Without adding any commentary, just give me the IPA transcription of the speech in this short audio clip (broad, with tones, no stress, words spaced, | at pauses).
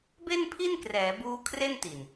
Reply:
be˥˩npʰi˥˩nkrɛː˩˦buː˦˥ kʰre˥˩nti˨˩n